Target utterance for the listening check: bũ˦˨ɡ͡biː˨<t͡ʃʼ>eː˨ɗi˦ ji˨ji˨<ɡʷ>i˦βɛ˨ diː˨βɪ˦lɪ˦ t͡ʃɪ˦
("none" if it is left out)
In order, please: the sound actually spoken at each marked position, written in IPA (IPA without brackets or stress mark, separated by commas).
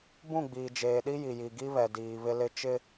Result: d͡ʒ, ɡ